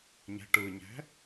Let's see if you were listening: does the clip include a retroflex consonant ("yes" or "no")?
yes